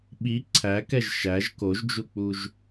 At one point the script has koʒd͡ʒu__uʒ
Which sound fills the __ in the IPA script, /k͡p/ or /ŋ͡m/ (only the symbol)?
k͡p